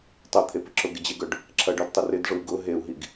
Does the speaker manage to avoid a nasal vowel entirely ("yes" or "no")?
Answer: yes